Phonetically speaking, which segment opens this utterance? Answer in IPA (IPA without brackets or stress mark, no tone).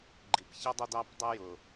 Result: ɡ͡ǃ